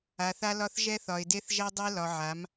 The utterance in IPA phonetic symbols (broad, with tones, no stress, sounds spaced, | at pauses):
a˨ θ a˦ l ɒ˦ θ ʒ ɛ˦ θ ɒ˨ ɪ̯ d e˦ θ ʒ ɛ˦ dˤ e˦ l ɒ˨ ʕ a˨˦ m